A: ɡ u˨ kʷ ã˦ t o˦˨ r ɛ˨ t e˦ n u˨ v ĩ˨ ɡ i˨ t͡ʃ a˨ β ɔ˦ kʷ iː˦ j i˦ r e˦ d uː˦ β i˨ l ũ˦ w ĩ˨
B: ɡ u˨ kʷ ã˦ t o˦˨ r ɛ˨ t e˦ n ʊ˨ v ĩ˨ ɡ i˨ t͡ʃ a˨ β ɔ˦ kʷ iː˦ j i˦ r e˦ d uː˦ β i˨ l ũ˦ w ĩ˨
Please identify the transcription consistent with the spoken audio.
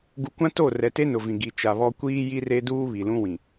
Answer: B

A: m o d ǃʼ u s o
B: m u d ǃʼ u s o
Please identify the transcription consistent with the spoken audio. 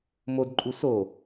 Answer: A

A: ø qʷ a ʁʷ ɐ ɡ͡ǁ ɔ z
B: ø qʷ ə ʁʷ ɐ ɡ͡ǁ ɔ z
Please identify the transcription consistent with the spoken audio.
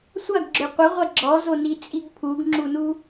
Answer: B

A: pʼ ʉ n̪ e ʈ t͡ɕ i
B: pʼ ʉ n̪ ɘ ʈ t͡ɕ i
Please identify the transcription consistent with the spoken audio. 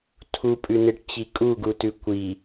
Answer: A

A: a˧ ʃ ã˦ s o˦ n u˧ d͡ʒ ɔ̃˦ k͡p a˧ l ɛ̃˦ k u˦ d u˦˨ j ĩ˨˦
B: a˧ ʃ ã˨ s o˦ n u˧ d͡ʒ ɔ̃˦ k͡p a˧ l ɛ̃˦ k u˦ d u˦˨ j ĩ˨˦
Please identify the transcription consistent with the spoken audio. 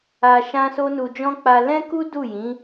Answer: A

